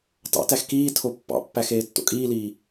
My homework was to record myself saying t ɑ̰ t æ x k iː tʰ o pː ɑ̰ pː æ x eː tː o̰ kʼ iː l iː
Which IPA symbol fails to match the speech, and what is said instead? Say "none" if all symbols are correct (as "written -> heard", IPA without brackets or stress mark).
none